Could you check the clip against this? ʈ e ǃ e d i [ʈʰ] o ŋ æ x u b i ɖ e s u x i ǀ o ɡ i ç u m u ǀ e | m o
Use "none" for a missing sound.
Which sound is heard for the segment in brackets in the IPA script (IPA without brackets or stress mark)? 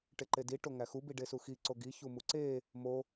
ʈ